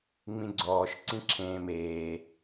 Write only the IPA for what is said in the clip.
ŋ͡m ĩ ɡ͡ǀ ɔː ʃ ǀ ĩ ǁʰ ẽː m eː

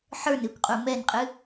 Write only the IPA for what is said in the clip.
ħ ə˞ n ɨ kʷ qʼ u m ɛ n qʼ ɨ

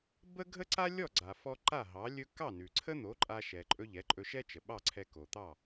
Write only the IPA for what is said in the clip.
b ə˥ ɡʱ ə˥ ǀ a˥ lʲ ɔ˥˩ ɡ͡ǀ a˩ f ɔ˧ ǃ a˥˩ ɦ ɑ˩˥ lʲ ɵ˥ k ɑ˥˩ n ʉ˩ ǀʰ ə˥ n̪ o˩˥ ǃʼ a˧ ʃ ɛ˩ ǃʼ ɵ˧ ʎ ɛ˩˥ ǃʼ ɵ˧ ʃ ɛ˥ t͡ʃ ə˩ ɓ ɑ˥˩ ǀʰ ɛ˧ k o˩ t̪ ɑ˥˩

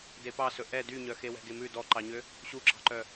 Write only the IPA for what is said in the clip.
d e p ɑ s ɵ ʔ ɛ d y ɲ œ x e w ɛ̤ ɡ e m ʉ d ɔ ǃ ɑ ɲ ø | ɕ u ǁ ɑ̤ ǃ œ

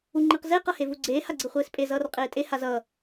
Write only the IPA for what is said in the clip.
u ŋ͡ǃ i q z e q ʌ h e v u ɡ͡ǀ eː h a ɡ͡ǀ ɯ χʷ eː s pʼ e z ʌː r qʼ eː tʼ e h a z ʌ

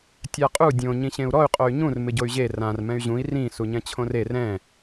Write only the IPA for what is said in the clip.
tʲ a qʼ u dʲ õ ɲ ĩ ɕ ẽ u̯ ɾ ɔ y̯ qʼ o y̯ ɲ ũ r m ɪ ɟ o y̯ ʑ e r ã r m ɛ̃ y̯ ʑ ũ i̯ r ĩ s u ɲ ɛ̃ t͡ɕʰ õ r e r ɛ̃

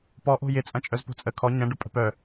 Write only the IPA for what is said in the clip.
p ɔ ʔ o̤ j ɪ t͡sʼ ɐ̃ t͡ʃʼ œ z p o̤ t͡sʼ ə kʰ ɔ ɲ ɐ̃ ɖ ʊ pʼ ə̤ p œ

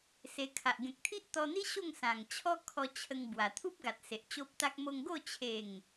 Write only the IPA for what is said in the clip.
s e˧ kʰ a˨ ʔ ɡ ẽ˨ k̚ t̪ʰ i˦ ʔ t̪ ɔ˧ n̪ i˦ ɕ o˥˧ ŋ s ã˨˩ ŋ t͡ɕʰ ɔ˦ kʰ ɔ˧ t͡ɕʰ ə˧ ŋ b w a˨˩ t̪ʰ u˦ p̚ ɡ a˨ t̚ s e˨ ʔ t͡ɕ o˦ p̚ t̪ a˦ k̚ m o˧ ŋ ɡ o˥˧ t͡ɕʰ e˨˩ ŋ

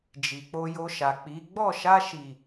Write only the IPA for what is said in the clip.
d͡ʒ i˨ k͡p o˧ j o˧ ʃ a˨ k͡p i˨˦ ɡ͡b ɔ˦˨ ʃ a˧ ʃ i˨

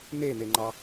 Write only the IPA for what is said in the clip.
n̪ e n̪ e ŋ͡ǃ ɑ

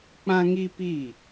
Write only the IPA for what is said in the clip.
k͡p ã˦ ŋ i˦ p i˦˨

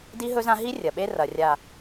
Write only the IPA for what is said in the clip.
d i˦ ɦ ɵ˦ z ã˦ ɦ i˦ rʲ ɐ˨ ɓ e˦ r ɐ˨ rʲ a˨

